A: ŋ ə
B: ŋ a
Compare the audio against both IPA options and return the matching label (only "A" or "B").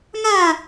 B